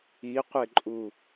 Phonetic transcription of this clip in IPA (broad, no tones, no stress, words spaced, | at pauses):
iqʷeǃʼu